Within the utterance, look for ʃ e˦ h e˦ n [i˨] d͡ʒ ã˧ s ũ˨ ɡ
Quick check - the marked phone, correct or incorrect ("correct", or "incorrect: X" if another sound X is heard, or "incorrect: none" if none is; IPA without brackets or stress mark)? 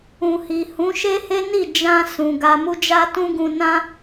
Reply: incorrect: i˦˨